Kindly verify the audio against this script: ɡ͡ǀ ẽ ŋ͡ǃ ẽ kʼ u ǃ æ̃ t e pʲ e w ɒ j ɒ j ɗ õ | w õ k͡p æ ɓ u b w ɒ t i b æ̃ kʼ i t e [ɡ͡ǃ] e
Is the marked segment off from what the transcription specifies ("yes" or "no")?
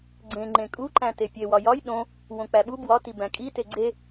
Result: yes